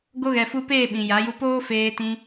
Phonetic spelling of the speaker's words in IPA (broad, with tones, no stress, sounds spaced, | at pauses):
ɡ o˧ ɣ ɛ˨ f u˧ p eː˦˨ ɓ ĩ˨ j a˨˦ j u˧ p oː˦ f eː˧ t ĩ˧